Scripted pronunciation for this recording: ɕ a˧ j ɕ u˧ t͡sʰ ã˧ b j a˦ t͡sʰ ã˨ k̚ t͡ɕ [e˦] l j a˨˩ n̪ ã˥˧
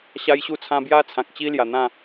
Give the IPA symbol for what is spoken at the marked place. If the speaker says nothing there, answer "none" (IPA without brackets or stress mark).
i˦